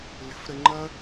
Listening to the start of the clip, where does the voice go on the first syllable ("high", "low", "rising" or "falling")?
rising